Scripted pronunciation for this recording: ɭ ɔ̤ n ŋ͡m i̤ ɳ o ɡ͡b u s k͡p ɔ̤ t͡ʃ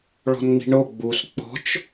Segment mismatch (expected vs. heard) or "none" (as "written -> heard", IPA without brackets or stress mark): none